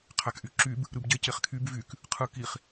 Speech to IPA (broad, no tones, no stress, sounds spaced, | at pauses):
qʰ æ k ʔ y ǁ y b | ɾ ɯ b ɟ e c e χ kʰ y b v y k | qʰ ɯ k i χ